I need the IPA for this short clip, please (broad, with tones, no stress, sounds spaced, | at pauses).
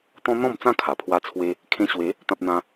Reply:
t̪ ɔ̃˦ n̪ ɔ̃˥˧ m t͡s ã˥˧ kʰ a˨˩ pʰ w a˦ t͡sʰ w e˦ | kʰ ẽ˧ ɕ w e˨˦ | t̪ ã˦ p̚ n̪ ã˦